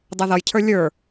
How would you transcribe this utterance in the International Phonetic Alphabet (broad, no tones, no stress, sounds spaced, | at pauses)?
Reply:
dˤ ɛ ð ʌ j cʰ ə˞ lʲ ə˞